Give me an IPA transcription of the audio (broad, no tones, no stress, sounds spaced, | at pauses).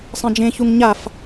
sˤ ẽ d͡ʒ ẽ ç u ŋ ɲ a f